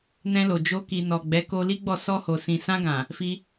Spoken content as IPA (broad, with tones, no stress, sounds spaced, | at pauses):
n ɛ̃˧ l o˨ d͡ʒ o˧ k i˨ n ɔ˨ ɡ͡b ɛ˨˦ k o˧ l i˦ ɡ͡b ɔ˦˨ s ɔ˧ h o˨ s ĩ˨ s ã˧ ɡ ã˨ | f i˧